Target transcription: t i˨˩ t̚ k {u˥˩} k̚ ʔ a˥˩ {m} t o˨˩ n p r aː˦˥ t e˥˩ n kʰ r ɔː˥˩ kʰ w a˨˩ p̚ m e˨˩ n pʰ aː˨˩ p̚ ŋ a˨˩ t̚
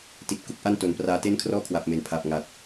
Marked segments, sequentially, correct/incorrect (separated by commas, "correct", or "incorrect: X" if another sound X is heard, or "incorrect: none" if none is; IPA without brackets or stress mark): incorrect: u˦˥, incorrect: n